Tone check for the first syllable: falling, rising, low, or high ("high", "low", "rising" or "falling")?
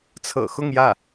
low